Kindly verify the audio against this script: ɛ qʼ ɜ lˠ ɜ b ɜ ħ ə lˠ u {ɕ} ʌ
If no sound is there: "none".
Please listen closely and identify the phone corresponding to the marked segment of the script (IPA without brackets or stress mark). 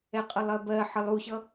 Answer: ɕ